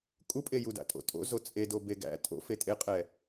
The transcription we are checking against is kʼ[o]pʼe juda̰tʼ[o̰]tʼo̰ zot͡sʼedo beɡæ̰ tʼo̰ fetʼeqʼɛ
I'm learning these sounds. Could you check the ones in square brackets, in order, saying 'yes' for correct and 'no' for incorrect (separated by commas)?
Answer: no, yes